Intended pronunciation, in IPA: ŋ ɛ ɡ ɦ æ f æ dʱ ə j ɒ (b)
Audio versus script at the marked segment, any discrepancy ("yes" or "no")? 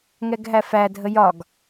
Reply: yes